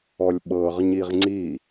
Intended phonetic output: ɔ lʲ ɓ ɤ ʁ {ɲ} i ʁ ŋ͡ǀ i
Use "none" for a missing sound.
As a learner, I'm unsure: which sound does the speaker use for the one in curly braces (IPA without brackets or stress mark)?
ɲ